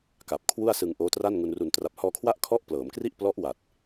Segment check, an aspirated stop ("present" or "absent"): present